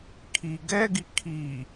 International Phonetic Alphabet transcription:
kʰ i ɡ ɛ ɡ i kʰ i

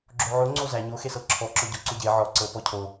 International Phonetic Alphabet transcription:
ɡ͡ǁ o ʕ o ŋ͡ǀ o z æ ɲ o x e s ɤ ǁʰ ɔ ǁ ɔ ɟ ɔ ǀ o ɟ e ʕ ɔ ǀ ɤ p ɔ cʰ o

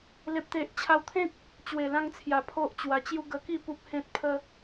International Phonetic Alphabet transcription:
l e˨ p̚ t̪ e˨ ʔ t͡ɕʰ a˧ w t̪ʰ ẽ˦ k̚ | t͡ɕ w e˨˩ l ã˧ ŋ t͡sʰ j a˨˩ pʰ o˦ ʔ t͡ɕ w a˧ t͡ɕ j u˦ ɡ ə˧ k i˥˧ p u˦ p̚ h ẽ˦ t̚ pʰ ə˦

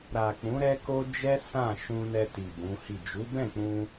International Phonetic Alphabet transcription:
ɾ a˨ k͡p ũ˨˦ ɾ ɛ˦ k o˦ d͡ʒ ɛ˦ s ã˦˨ ʃ ũ˧ n ɛ˧ t i˨ b ũ˨˦ h i˦˨ d͡ʒ u˨˦ b ɛ̃˦˨ k͡p ũ˧

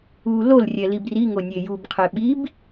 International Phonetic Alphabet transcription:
u l o l rʲ ɛ l i b r i ŋ o nʲ e j u b qʰ e ɓ i b

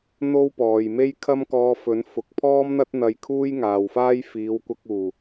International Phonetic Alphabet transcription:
n̪ o˥ w p ɔː˨ j m e˥ j kʰ ɐ˥ m k ɔː˧ f ɵ˨˥ n f ʊ˨ k̚ pʰ ɔː˥ m n̪ ɐ˥ t̚ n̪ ɐ˧ j kʰ uː˥ j ŋ aː˨ w f aː˥ j f iː˨˧ w kʷ ɐ˧ k̚ uː˨˩

